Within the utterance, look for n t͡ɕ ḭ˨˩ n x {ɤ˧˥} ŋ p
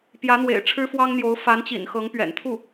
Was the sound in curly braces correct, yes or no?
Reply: yes